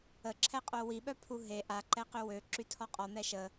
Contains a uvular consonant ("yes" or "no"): yes